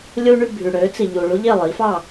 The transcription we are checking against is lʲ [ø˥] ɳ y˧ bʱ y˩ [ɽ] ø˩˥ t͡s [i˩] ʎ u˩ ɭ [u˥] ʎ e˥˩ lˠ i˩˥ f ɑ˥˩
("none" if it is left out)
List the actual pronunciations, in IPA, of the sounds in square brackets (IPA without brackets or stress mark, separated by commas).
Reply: u˥, ɽ, i˩, u˥